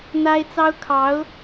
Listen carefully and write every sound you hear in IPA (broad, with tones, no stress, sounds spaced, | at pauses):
n̪ a˥ ɪ̯ t͡s ɑ˥ ʊ̯ kʰ ɑ˧˥ ʊ̯